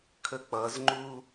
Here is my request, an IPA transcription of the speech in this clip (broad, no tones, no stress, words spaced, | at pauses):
kʰək͡pʌzŋ͡ǃu